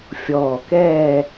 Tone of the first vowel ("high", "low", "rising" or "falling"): low